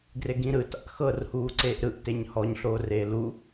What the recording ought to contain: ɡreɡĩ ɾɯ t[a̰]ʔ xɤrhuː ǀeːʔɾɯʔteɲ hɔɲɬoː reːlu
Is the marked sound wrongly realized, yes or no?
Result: no